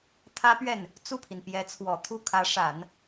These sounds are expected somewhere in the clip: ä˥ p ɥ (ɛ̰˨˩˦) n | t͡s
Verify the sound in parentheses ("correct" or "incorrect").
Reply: incorrect